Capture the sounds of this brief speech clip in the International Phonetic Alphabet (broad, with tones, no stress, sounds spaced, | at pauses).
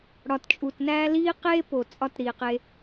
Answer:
ɽ ɒ˨ t t͡ʃʼ u˨ t n æː˦ l iː˦ q eː˦ p o˨ t͡sʼ ɒ˦ t ɾ iː˨ q e˦